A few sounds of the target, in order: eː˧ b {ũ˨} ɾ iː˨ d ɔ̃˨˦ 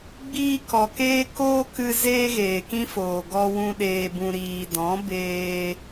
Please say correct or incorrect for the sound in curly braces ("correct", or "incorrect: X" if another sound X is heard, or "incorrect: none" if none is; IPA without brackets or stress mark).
incorrect: ũ˧